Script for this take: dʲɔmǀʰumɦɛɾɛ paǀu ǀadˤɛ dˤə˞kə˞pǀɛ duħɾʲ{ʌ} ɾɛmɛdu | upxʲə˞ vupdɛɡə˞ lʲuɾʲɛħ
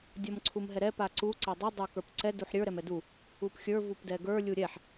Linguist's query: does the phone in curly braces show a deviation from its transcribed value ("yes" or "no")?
yes